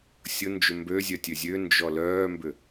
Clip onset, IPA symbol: sʲ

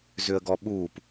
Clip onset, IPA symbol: z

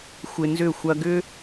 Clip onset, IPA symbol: xʷ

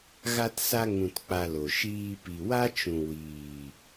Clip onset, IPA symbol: ɣ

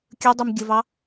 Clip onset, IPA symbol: kʲ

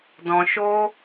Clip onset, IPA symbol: d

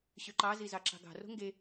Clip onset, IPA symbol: ɕ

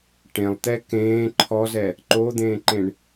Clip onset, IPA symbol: ʈ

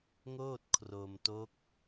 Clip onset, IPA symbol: ŋ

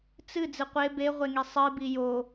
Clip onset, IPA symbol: t͡s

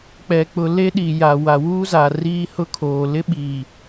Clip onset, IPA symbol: k͡p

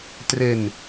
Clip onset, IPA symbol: t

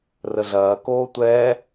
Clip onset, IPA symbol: r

